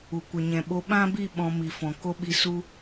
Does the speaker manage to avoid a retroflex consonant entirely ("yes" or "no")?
yes